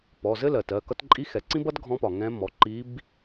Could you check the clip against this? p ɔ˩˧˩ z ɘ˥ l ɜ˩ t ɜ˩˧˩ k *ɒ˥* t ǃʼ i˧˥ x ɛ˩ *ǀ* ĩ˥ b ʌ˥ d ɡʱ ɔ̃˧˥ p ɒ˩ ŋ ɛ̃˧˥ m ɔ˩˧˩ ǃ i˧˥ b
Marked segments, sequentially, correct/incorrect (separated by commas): incorrect, correct